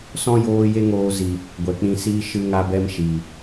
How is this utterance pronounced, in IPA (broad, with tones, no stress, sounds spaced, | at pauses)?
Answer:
s ɔ̃˦ j oː˧ j e˦ ŋ oː˧ z i˨ | ɡʷ ɛ˨ k͡p ĩ˧ s iː˧ ʃ ɨ˧ ŋ a˧ b ɛ˧ m ʃ iː˨